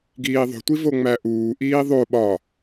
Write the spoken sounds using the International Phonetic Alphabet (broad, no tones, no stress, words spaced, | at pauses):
ɡiːðˤo̤tʷi voŋ͡mæʔuːʔiː ðˤo ɓɒ